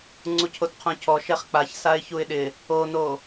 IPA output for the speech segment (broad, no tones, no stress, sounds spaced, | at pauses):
ŋ͡ǀ u cʰ o t qʰ õ cʰ ɔ ʃ ɛ χ k͡p a ç s a ɪ̯ ç u ɪ̯ ɗ ɪ | o n o